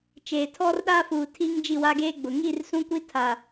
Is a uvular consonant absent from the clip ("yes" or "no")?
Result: yes